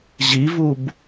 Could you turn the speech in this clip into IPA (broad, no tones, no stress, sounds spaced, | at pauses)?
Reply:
ʑ i v u b